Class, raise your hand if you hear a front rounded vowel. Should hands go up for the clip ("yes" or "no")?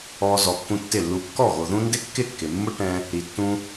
no